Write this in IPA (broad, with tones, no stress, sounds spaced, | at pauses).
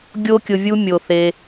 ɡʲ o˦ kʲ ʊ˧ vʲ u˦ mʲ o˨ θ e˧